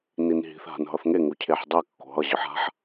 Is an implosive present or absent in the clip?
absent